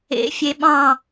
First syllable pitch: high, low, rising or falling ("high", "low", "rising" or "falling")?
rising